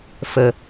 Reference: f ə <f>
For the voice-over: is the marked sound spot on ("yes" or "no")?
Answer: no